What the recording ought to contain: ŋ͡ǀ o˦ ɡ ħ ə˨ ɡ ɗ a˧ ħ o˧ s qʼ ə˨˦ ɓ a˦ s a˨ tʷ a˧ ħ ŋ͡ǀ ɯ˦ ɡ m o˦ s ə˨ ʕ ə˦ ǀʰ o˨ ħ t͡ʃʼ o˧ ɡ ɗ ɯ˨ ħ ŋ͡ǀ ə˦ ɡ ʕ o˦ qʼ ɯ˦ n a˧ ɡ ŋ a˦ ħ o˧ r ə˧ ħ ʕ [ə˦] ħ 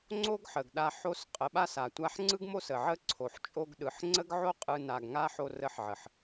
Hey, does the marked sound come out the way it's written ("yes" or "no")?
no